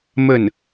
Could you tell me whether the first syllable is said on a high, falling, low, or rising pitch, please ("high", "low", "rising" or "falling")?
falling